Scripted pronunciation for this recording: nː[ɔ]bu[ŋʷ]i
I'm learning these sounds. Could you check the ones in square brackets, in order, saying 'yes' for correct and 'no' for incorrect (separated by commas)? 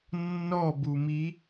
yes, no